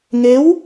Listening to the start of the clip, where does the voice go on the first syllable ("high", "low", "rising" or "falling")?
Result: rising